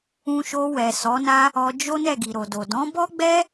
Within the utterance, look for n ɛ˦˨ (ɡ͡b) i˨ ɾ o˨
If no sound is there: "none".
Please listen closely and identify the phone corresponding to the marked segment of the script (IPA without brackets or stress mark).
ɡ